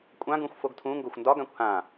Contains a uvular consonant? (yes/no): no